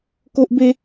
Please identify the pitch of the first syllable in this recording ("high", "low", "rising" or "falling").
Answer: high